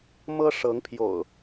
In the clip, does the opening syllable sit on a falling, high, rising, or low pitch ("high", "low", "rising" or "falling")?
high